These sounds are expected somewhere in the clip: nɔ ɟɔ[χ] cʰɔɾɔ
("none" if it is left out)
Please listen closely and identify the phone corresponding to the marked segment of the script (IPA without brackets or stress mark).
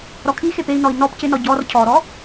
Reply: r